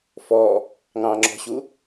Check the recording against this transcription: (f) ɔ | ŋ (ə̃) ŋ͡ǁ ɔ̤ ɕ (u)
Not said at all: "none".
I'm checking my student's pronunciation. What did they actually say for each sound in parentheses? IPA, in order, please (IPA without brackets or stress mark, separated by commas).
f, ɑ̃, u